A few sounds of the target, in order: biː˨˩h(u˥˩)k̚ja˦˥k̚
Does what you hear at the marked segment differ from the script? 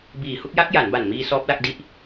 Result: no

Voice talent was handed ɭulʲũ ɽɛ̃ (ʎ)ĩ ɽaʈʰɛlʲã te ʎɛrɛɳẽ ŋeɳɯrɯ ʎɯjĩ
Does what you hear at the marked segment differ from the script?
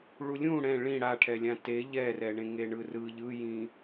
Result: yes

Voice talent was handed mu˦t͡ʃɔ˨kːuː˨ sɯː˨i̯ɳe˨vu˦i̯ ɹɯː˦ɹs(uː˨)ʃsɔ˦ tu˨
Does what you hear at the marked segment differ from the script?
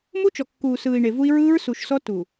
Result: yes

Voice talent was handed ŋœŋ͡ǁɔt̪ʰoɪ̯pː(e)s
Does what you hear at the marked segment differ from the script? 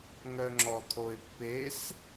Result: no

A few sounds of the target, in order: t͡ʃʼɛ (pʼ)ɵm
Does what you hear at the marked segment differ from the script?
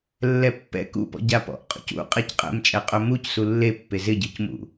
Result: yes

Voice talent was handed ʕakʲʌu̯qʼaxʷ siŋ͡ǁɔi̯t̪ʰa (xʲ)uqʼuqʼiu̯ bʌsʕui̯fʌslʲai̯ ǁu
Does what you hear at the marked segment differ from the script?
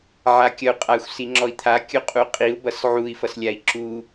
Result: yes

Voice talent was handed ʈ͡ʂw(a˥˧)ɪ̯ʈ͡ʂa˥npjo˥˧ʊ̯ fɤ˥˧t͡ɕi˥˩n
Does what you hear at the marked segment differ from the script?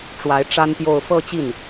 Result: yes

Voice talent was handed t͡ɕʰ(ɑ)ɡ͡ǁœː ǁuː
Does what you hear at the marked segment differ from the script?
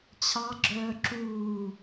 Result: no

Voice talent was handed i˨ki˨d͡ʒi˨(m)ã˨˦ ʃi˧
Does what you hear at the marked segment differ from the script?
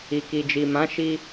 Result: no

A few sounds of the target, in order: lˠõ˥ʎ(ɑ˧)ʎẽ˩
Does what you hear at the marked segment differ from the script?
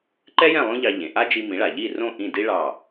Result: no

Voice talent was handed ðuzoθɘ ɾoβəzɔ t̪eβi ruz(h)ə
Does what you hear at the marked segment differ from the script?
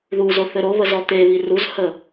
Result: no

